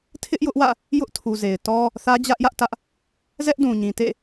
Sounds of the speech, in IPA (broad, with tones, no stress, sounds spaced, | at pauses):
tʰ ɪ˦ ʔ j ʊ˦ ʔ w ä̰˦˨ | j ʊ˦ ʔ tʰ u˨ z e˨ ɪ̯ t ɔ˦ | θ ä˦ d͡ʑ ä˦ ʔ j ä˦ ʔ t ä˦ ʔ | z ɛ˦ ʔ d ũ˨ ɲ ĩ˨ t ḛ˦˨